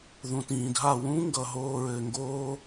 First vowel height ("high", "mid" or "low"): high